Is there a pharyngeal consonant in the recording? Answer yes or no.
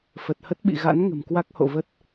no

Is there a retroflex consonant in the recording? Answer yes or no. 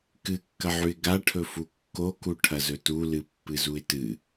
yes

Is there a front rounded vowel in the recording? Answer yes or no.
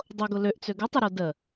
yes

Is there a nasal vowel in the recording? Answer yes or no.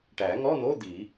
no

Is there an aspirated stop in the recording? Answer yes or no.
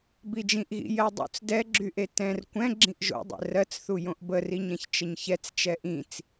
no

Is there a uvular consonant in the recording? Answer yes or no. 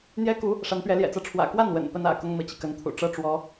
no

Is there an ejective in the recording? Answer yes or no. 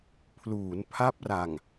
no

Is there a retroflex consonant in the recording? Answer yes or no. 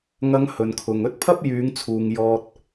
no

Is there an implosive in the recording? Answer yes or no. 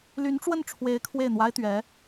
no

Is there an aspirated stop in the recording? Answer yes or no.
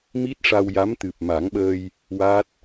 no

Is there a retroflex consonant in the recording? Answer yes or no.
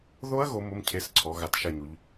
no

